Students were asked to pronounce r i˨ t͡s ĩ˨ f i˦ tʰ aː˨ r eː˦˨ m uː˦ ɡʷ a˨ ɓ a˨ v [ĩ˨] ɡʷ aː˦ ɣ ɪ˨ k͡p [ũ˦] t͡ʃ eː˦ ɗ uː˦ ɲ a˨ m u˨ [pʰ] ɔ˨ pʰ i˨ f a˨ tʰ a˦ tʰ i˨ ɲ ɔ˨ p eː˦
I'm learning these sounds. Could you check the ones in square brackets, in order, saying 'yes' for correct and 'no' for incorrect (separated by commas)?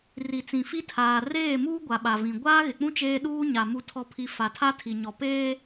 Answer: yes, yes, no